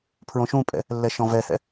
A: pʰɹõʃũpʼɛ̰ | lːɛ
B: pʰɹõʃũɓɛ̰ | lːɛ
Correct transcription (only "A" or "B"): A